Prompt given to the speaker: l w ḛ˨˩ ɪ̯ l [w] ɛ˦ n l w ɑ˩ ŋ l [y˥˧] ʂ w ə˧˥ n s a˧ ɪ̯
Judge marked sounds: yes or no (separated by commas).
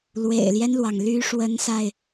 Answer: no, no